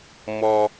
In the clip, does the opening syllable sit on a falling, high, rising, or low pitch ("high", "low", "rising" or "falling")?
high